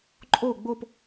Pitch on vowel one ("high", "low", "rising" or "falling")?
falling